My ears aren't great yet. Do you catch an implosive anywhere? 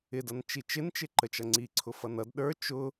yes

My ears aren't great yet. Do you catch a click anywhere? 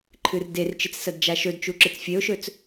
yes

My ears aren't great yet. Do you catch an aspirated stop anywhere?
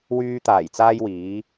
no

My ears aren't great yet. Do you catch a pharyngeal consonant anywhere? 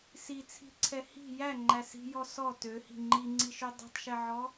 yes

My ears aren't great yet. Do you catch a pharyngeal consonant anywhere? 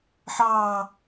yes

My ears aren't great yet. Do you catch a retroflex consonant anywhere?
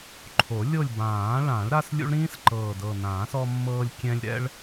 yes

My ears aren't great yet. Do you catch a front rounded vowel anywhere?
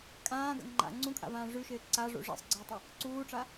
yes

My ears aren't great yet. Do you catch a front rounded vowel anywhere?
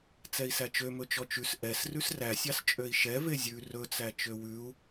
yes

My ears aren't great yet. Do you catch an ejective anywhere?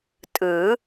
yes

